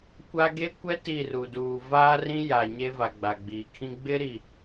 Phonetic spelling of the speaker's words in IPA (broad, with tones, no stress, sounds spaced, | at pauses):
kʷ a˦ ɡ e˦ kʷ ɛ˦ t i˦˨ r u˨ d uː˨ v aː˦ r ĩ˦ j a˨ ɲ e˦ v a˨ ɡ͡b a˨ ɡ͡b iː˨ kʰ ĩ˦ ɡ͡b ɪ˦ ɾ i˨